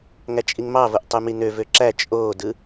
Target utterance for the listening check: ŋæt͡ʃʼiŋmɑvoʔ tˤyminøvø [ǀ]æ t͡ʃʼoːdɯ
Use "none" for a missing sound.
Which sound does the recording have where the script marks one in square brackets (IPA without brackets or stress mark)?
ǁ